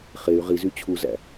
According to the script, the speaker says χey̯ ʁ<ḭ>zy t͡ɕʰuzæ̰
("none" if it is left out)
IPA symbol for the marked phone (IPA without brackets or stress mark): i